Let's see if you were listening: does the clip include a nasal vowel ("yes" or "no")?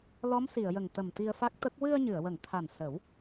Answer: no